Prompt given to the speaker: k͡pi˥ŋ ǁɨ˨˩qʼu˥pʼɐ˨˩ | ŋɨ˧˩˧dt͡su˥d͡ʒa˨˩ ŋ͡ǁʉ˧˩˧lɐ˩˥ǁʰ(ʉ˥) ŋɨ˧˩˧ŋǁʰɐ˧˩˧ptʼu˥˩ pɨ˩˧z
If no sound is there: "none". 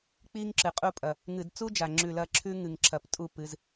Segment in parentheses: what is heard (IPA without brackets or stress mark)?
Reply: ʉ˥